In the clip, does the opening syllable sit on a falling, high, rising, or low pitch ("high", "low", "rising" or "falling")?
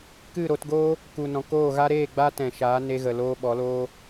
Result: falling